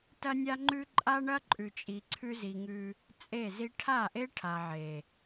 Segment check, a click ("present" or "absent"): present